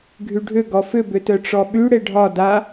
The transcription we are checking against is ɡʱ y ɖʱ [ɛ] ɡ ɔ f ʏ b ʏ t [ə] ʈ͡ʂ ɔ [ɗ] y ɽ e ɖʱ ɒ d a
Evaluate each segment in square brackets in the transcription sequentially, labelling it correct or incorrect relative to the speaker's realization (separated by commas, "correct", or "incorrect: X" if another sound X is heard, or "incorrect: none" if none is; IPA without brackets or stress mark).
incorrect: ʏ, incorrect: œ, incorrect: ɓ